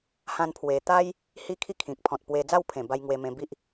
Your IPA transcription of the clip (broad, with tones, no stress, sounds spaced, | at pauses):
h ã˧ n pʰ w e˧ t̪ a˦ j | h i˧ kʰ i˧ kʰ ĩ˨ k̚ pʰ ɔ̃˨ t̚ p w e˧ d͡z a˥˧ w pʰ ẽ˨˩ b a˧ j ŋ w e˧ m ẽ˧ b i˦ ʔ